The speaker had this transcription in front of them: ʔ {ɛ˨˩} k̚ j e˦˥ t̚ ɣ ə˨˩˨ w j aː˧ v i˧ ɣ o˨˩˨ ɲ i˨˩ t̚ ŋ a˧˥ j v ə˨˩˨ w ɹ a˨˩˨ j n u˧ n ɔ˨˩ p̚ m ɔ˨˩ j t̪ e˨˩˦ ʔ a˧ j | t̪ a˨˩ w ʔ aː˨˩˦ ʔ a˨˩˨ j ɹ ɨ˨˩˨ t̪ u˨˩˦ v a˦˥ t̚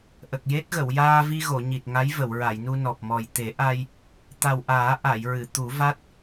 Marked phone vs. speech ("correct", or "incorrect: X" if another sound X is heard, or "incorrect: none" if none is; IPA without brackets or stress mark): incorrect: ə˨˩